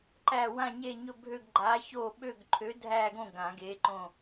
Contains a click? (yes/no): yes